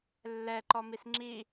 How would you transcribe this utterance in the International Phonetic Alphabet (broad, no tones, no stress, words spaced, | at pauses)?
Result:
lːɛǃɔmis ŋ͡ǁi